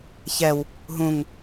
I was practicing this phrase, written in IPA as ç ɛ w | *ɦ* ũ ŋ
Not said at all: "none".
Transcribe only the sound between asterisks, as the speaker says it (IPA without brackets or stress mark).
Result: ɦ